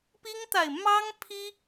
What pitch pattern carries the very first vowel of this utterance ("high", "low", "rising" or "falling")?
high